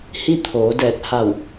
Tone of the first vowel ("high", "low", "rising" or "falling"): falling